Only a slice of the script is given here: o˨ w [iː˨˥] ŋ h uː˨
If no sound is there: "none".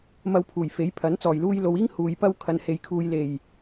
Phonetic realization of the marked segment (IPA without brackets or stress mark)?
iː˥